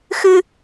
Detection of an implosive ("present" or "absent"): absent